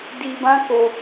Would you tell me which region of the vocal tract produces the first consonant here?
tongue tip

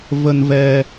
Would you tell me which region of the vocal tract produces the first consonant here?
lips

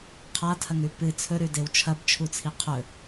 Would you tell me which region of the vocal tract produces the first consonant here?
uvula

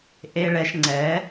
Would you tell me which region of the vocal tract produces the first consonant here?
throat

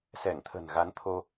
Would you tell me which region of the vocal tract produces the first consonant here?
tongue tip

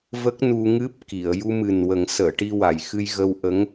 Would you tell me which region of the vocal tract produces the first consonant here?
lips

